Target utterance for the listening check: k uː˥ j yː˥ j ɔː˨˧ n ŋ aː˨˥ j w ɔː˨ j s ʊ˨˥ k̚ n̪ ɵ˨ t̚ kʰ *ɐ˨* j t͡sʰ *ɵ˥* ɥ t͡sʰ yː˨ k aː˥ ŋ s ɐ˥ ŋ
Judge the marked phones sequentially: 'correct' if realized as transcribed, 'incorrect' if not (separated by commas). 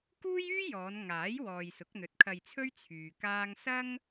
incorrect, correct